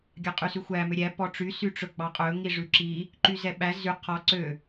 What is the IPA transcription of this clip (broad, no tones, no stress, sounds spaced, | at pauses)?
ɡʲ ɑ qʼ y s ʉ xʷ æ m ø ɾʲ æ p ɔ ʈ͡ʂ y s y ʈ͡ʂ ɵ ɡ͡b ɑ qʼ ɵ ŋ i ʐ ʉ ǁ i | ǃ y z ɛ ɓ æ z y qʰ ɔ ǀ ø